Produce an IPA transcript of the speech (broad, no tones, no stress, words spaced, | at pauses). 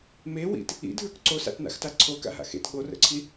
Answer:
mewḭt | ḭdʱə˞k ǀosa̰tna̰xta ǀʰoka̰ɦa̰ xḛt ɠorə̰ǀʰi